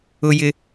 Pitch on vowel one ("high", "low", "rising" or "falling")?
high